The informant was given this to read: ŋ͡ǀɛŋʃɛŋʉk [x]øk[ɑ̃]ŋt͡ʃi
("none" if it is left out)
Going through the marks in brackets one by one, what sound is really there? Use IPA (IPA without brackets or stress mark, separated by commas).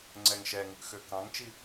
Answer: x, ɑ̃